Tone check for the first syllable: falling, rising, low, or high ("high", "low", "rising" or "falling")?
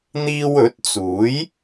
high